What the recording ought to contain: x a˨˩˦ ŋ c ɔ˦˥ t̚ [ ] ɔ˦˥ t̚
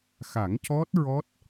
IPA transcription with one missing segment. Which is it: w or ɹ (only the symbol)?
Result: ɹ